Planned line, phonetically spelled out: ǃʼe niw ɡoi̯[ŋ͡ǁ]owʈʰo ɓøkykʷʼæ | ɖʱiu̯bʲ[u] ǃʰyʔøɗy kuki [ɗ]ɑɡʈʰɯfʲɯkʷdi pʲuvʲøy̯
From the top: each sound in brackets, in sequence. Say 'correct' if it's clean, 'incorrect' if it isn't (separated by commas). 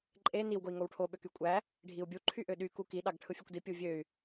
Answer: incorrect, correct, correct